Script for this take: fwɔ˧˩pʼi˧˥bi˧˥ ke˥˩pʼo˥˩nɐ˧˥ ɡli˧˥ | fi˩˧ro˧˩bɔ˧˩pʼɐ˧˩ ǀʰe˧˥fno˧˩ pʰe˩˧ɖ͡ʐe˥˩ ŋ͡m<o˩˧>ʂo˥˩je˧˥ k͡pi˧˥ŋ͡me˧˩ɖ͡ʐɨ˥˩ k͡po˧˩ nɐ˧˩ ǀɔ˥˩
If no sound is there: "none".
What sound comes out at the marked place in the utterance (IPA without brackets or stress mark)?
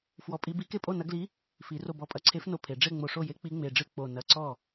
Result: o˧˩